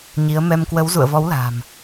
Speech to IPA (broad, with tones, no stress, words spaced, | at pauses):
ɲi˨˦ə̯ mɛ˧mkwə˨˦w zṵ˧˨ə̯vɔ˨˦wla̤ː˨˩m